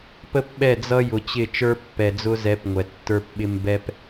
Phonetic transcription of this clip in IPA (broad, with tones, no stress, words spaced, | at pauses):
pə˦pɓɛ˦˨ d͡zʌ˦jʊ˨t͡ɕɪ˦˨ t͡ʃə˞˦pːɛ˨d͡zʊ˦zɛ˨˦p ŋʷɛ˨tːə˞˦pɓɪ˦m bɛ˦p